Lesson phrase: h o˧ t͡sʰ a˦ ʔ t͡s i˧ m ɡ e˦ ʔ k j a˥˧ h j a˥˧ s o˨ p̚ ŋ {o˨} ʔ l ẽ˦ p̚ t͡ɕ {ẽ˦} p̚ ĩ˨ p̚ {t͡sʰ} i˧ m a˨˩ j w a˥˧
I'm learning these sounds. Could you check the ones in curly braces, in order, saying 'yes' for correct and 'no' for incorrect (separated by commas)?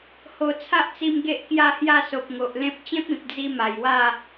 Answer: yes, yes, no